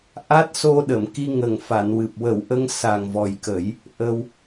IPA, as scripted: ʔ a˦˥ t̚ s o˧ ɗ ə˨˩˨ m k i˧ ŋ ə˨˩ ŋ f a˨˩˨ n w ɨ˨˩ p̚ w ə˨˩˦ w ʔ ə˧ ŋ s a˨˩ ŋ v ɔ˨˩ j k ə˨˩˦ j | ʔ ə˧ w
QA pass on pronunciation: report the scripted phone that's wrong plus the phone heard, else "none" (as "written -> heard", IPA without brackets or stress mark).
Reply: none